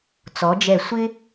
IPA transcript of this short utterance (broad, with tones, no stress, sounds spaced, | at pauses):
t͡s ɔ˩˧ d͡ʒ ɛ˧˩ sʷ ɪ˥